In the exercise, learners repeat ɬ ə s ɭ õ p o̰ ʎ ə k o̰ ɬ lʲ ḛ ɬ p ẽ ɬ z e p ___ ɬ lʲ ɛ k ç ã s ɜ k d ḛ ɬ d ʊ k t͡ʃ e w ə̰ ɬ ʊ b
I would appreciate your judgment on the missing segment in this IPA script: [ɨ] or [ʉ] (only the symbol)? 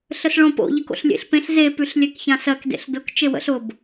ʉ